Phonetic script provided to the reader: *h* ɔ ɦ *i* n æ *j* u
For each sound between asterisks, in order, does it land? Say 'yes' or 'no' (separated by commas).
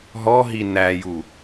no, yes, yes